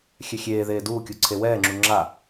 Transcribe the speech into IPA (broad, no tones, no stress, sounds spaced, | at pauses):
xʲ ɛ xʲ eː ð eː d uː kʲ u ǀʰ e w ɛː ŋ͡ǁ u ŋ͡ǁ a